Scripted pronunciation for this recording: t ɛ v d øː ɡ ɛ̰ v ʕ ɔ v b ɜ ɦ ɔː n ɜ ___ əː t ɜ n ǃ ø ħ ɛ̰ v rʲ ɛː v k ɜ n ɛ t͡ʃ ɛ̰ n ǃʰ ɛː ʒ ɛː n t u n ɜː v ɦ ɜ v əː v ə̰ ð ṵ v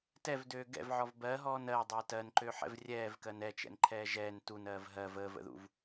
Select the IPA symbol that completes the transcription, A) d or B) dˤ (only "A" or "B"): B